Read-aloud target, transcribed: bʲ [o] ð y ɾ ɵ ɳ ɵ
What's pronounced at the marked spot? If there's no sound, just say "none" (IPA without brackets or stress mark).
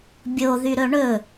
o